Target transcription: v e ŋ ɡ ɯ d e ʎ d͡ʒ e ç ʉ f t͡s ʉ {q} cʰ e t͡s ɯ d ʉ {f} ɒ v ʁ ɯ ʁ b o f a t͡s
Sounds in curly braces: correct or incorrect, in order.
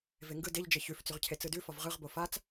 incorrect, correct

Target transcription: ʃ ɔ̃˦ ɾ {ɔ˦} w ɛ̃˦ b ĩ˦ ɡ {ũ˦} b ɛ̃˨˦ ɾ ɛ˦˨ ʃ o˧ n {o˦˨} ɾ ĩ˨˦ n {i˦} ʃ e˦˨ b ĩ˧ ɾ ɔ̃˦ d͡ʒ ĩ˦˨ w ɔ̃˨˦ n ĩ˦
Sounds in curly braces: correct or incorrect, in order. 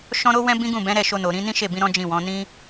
incorrect, incorrect, incorrect, incorrect

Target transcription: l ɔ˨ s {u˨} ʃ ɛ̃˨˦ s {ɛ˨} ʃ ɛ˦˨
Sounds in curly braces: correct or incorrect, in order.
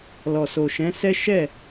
incorrect, incorrect

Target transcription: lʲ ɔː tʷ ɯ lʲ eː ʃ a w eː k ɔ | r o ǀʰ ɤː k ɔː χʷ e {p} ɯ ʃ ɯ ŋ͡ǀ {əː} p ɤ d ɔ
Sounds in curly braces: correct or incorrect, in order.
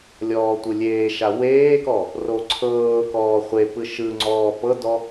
correct, incorrect

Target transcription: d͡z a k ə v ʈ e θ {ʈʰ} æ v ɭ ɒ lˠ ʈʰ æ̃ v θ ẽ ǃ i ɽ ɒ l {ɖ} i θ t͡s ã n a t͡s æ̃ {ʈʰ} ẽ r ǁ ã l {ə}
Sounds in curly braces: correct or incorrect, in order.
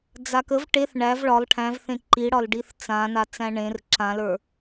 incorrect, correct, incorrect, incorrect

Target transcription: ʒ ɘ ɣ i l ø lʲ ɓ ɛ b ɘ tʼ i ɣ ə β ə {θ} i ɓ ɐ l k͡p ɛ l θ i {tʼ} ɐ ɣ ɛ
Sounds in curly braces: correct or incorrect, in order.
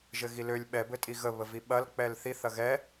incorrect, incorrect

